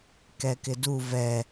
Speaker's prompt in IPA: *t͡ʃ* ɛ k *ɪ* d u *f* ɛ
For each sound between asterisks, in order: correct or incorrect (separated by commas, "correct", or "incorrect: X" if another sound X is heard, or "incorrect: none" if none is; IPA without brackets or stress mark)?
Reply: incorrect: k, correct, incorrect: v